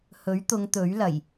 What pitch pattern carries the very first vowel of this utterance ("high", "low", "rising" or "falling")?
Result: rising